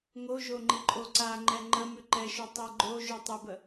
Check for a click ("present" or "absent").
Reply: present